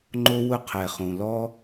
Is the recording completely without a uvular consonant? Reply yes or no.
no